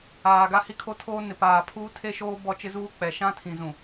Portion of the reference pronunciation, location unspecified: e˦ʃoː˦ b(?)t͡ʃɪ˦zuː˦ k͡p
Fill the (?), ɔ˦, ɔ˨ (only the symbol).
ɔ˦